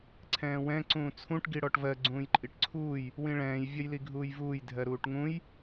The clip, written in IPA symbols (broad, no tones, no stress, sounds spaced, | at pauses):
ǀʰ ɛ̃ː w ɛ̃ ǀ ũː t͡sʰ ũ ʈ ɡ i ɽ ɔ ʈ v ɜ ɡ͡ǀ ũː j ǃʼ i ʈ ǀʰ uː j | w ĩ ɭ ɛ̃ː j vʲ ʌ j l i ɡʱ uː j v uː j dʱ ɜ ɾ uː ʈ ŋ ũ j